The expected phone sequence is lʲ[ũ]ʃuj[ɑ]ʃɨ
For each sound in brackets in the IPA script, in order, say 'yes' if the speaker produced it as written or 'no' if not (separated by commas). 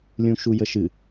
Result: yes, no